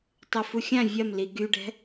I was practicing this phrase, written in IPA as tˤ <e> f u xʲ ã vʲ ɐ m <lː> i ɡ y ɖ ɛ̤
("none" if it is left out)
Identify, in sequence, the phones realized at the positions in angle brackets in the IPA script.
ɛ, l

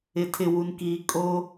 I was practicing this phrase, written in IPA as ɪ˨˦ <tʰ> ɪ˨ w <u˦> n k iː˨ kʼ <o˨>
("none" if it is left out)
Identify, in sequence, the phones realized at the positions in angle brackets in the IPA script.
tʰ, u˨, o˦

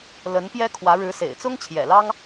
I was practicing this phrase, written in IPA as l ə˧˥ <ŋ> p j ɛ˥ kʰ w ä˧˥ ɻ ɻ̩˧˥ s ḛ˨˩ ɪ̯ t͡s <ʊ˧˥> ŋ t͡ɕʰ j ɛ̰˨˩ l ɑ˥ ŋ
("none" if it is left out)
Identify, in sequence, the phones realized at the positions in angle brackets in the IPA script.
n, ʊ˥

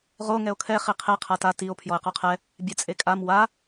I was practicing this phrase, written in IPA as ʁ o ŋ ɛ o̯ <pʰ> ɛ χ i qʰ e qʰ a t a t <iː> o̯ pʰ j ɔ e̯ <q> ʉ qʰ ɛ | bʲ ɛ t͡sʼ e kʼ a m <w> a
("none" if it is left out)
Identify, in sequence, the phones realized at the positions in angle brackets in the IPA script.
kʰ, i, q, w

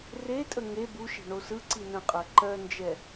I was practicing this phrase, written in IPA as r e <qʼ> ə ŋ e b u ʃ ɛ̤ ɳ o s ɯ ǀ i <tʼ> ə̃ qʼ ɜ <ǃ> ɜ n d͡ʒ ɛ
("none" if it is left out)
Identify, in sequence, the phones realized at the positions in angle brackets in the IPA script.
tʼ, n, ǃ

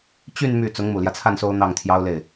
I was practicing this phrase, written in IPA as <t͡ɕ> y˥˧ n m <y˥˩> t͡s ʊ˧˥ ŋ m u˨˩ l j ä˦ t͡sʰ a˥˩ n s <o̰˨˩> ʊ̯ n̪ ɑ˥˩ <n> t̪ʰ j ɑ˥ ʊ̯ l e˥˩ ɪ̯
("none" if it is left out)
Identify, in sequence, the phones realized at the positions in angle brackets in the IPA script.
t͡ɕ, y˥˩, o˥, ŋ

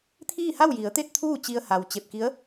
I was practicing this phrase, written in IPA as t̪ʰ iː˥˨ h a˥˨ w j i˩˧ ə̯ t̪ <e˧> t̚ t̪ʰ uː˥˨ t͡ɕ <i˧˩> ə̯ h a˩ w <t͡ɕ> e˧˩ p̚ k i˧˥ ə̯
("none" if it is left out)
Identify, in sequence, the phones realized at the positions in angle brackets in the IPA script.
e˥˨, i˧, t͡ɕ

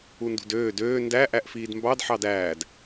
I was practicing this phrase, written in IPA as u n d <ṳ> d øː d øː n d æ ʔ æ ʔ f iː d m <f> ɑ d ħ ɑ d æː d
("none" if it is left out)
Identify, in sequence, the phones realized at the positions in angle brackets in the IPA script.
ṳ, b

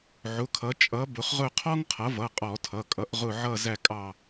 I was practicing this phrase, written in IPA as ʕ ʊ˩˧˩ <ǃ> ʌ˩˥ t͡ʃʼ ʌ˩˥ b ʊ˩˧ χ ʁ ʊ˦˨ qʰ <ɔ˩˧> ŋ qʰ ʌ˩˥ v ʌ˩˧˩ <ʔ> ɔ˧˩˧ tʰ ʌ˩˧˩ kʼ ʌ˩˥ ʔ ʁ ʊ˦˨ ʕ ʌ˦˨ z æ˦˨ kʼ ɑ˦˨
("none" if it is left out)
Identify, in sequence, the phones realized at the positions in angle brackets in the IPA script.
kʰ, ɔ˥, qʼ

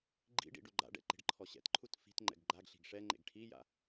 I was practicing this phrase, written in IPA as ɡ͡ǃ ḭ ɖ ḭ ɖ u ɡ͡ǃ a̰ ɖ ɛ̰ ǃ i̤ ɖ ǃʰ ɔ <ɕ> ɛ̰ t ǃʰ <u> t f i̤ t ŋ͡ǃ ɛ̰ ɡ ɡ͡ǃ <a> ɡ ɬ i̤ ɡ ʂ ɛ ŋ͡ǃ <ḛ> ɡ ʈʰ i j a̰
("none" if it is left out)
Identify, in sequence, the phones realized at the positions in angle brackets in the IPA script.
ɕ, u, a, ḛ

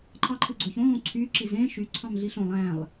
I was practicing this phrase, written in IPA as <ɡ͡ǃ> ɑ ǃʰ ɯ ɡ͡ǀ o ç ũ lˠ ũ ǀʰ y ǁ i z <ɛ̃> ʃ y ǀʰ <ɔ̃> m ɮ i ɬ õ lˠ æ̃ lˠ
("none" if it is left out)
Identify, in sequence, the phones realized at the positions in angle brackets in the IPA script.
ǃʰ, ẽ, ɑ̃

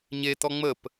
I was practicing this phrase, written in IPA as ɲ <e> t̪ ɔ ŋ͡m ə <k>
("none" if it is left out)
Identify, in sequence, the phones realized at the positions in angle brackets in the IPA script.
e, p

